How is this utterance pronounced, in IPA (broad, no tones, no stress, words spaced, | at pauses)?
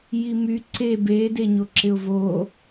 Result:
jimy ǀe beːdeɲo ǁɪʊ̯vo